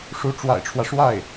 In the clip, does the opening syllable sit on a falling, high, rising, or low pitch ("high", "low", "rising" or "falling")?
rising